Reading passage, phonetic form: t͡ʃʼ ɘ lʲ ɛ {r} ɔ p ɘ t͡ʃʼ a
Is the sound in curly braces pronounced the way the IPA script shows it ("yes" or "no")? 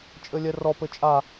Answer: yes